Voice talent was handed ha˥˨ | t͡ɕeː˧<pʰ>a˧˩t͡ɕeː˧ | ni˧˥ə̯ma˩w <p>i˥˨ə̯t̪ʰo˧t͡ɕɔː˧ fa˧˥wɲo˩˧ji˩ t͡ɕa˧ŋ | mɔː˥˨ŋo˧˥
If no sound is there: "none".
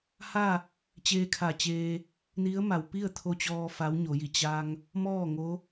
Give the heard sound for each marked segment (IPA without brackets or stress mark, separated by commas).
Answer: kʰ, p